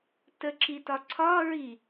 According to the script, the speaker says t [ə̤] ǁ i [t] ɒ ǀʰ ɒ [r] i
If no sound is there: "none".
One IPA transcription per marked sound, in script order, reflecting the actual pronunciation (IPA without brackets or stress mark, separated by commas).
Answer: ə, t, ɹ